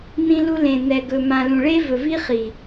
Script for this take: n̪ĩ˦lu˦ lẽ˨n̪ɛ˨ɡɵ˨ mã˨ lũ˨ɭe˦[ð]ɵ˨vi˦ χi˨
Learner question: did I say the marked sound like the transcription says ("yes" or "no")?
no